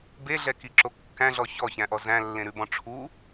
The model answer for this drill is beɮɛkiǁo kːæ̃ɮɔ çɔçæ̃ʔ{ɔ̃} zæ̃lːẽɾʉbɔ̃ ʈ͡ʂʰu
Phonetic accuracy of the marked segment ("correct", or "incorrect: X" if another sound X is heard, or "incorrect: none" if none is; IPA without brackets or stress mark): incorrect: ɔ